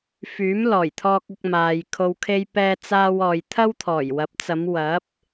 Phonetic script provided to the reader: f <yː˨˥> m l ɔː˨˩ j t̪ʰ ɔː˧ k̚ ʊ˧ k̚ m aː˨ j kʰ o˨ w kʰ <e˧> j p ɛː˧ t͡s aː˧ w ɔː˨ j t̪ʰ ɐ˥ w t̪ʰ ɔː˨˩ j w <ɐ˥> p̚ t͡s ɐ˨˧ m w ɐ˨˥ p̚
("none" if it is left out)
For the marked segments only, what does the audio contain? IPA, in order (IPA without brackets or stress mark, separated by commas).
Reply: yː˨˥, e˧, ɐ˨˥